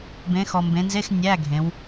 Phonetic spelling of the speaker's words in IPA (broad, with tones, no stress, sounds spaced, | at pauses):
b ẽ˩˧ x ɔ˩ m b ẽ˩˧ n z e˧˥˧ x nʲ æ˧˥˧ ɡʱ ẽ˩˧ w